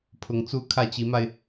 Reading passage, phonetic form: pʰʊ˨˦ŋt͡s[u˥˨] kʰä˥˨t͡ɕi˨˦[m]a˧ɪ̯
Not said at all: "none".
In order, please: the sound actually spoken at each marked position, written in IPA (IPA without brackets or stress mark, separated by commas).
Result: u˦, m